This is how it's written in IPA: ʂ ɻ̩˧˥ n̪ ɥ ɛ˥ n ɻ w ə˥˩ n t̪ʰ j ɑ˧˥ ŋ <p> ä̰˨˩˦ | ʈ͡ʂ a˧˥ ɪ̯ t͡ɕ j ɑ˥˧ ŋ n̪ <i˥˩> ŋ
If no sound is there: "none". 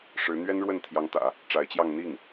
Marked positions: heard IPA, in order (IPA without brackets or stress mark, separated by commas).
t̪, i˥˩